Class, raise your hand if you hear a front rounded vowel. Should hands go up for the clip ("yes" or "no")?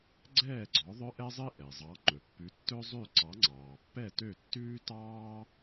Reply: yes